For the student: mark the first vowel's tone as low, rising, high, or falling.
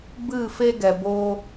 falling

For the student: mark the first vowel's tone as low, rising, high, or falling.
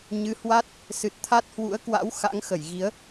rising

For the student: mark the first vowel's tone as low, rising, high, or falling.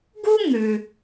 high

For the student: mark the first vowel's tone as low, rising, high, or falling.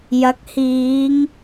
rising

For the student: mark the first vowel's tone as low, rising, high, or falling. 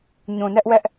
low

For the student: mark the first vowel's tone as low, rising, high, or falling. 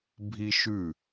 high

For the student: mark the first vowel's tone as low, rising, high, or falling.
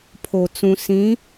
low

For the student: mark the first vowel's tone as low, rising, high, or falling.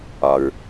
low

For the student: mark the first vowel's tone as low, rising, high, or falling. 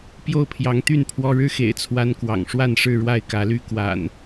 falling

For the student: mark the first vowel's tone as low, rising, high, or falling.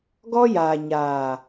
high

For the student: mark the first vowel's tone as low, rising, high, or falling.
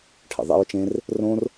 low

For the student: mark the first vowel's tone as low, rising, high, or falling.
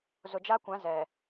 low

